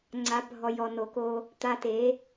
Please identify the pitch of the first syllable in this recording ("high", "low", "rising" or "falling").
rising